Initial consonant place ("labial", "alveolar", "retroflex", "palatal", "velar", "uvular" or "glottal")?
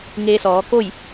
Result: velar